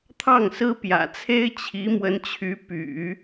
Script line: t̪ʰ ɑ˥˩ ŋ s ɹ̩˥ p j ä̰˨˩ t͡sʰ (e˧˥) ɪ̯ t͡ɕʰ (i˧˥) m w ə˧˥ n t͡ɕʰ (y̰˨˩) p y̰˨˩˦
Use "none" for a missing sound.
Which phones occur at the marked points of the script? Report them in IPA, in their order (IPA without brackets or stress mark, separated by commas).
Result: e˥, i˧˥, y˧˥